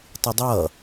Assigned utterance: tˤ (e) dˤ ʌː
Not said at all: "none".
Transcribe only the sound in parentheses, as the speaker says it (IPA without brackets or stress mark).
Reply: i